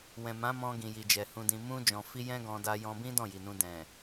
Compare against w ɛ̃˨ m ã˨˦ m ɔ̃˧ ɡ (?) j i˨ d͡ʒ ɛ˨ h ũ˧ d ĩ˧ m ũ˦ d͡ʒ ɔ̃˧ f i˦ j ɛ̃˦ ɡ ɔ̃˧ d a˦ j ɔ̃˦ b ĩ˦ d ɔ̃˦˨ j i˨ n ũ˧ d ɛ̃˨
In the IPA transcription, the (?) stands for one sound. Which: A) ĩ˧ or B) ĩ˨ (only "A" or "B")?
B